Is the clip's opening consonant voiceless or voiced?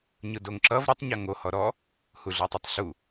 voiced